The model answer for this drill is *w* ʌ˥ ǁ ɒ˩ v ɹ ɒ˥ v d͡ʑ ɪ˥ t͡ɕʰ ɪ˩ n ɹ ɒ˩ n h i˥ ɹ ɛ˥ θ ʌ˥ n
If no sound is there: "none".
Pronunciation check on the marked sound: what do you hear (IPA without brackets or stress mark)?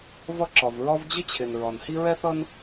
v